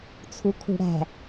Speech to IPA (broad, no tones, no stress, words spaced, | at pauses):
t͡sʰukʰṳɽæ̤